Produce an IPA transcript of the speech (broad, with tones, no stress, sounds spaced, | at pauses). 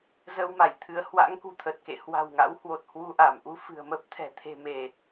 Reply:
z ə˧ w m a˧˩ j t̪ʰ ɨ˨˦ ə̯ h w a̰˧˥ ŋ k ṳ˨˩ t̪ʰ ə˨˩ t̚ k ḛ˧˨ h w a̤˨˩ w ŋ a̰˧˥ w h w o˨˩ t̚ h w u˧ ʔ a˧˩ m ʔ u˧ f ɨ̤˨˩ ə̯ m ə˦˥ p̚ t̪ʰ ɛ̤˨˩ t̪ʰ e̤˨˩ m e˧˩˨